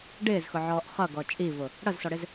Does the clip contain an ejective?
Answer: yes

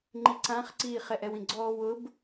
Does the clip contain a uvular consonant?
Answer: yes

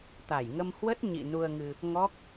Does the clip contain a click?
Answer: no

